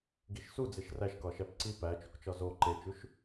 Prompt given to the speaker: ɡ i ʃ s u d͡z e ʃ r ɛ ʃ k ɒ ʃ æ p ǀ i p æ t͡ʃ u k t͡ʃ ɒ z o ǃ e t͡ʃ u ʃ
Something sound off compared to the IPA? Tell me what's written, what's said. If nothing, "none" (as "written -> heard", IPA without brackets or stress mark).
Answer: ɛ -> æ